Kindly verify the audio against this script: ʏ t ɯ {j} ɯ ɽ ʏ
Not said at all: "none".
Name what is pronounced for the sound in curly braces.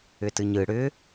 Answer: ɲ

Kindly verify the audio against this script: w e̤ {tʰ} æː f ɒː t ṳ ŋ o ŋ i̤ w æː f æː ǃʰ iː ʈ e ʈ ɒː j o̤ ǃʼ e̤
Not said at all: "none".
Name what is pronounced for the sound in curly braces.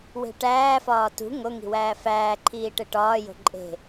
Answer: ʈ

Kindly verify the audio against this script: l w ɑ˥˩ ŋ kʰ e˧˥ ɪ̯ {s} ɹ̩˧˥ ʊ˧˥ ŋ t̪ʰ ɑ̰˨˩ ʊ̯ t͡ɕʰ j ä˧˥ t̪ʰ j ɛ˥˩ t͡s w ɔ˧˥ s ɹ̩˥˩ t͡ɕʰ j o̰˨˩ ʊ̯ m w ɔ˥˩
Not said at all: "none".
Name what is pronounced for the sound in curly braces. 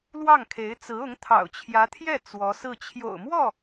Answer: t͡s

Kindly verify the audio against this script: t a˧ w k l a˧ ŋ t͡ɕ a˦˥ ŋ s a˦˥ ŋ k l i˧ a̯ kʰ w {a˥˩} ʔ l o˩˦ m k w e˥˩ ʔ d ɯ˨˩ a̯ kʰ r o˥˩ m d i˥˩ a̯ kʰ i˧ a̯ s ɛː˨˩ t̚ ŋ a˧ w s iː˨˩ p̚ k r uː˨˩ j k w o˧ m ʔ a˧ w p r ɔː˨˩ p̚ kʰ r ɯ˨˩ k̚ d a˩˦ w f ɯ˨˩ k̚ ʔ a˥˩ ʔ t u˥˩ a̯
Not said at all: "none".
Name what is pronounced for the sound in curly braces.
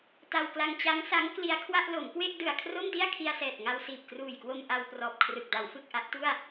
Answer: a˥˩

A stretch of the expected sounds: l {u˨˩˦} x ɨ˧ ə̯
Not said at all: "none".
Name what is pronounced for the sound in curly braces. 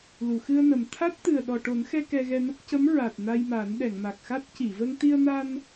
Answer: u˨˩˨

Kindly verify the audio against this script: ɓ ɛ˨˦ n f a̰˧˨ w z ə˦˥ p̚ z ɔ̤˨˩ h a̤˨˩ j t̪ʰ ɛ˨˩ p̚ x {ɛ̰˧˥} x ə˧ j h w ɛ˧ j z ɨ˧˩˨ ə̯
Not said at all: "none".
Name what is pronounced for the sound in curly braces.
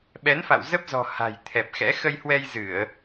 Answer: ɛ̰˧˥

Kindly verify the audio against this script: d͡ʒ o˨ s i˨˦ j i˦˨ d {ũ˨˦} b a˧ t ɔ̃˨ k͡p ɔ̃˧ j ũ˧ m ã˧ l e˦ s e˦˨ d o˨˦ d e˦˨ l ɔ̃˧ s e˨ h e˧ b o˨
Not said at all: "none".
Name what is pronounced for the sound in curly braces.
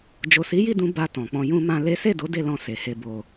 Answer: ũ˨˦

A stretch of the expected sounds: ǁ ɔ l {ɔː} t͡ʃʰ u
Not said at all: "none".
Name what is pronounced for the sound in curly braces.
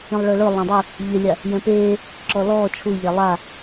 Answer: ɔː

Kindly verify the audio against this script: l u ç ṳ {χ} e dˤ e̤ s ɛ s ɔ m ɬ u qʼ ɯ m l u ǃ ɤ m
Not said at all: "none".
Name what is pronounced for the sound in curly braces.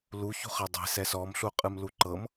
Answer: χ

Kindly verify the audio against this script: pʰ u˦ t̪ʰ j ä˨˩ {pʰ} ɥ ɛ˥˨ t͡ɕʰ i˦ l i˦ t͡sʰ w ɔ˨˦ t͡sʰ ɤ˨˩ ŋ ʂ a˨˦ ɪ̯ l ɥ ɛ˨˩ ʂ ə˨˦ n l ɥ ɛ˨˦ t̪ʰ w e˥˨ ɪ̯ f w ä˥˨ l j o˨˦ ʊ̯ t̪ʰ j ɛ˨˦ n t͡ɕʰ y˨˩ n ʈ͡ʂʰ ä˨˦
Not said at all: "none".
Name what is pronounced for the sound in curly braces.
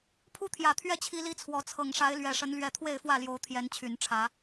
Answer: t̪ʰ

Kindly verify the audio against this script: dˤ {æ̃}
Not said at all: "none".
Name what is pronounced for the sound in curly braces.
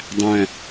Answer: æ̃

